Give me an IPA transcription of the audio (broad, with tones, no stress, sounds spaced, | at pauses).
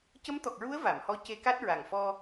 c ə˧˥ m t̪ ɔ˨˩ k̚ ɹ u˧˥ ə̯ v a˨˩˨ m h ɔ˧˥ c e˧ k a˦˥ t̚ ɹ a˨˩ ŋ f ɔ˧